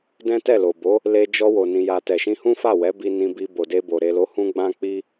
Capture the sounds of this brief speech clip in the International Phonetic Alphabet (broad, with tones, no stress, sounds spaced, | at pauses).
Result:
d ɛ̃˦ t ɛ˦˨ l o˨ b o˨˦ | l e˧ d͡ʒ ɔ˧ w o˨ n ĩ˨ j a˨ t ɛ˨ ʃ ĩ˧ h ũ˦ f a˦˨ w ɛ˨˦ b i˧ n ĩ˧ b i˧ b o˨ d e˧ b o˨ ɾ e˨ l o˨˦ h ũ˧ ɡ͡b ã˦ k͡p i˦